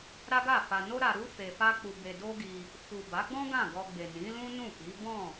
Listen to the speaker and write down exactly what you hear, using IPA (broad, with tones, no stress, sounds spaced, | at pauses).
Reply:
ɾ a˦ ɡ a˦˨ f a˧ n o˦ ɾ a˧ ɾ u˦ f e˧ f a˦ k͡p u˧ b e˧ d o˦ ɡ i˧ | f u˨ b a˨˦ ɡ͡b ɔ̃˦ ɡ ã˦˨ ɡ ɔ˧ ɡ͡b e˨ n ĩ˨˦ l ũ˦ n ũ˦˨ k i˨˦ b ɔ̃˦˨